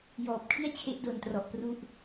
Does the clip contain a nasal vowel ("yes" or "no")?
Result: no